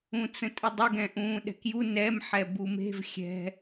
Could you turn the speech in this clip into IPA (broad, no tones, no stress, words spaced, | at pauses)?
ũt͡sə̃tʼədˤə ɡɛ̃ʔũːɗɛ̤kju nɛm ħɛbume̤v xʲɛ̤